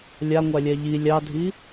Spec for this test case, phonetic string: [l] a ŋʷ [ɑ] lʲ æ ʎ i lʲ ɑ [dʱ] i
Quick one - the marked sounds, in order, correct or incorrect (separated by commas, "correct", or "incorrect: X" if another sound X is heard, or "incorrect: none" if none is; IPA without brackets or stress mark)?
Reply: incorrect: lʲ, incorrect: a, correct